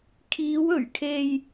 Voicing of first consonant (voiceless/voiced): voiceless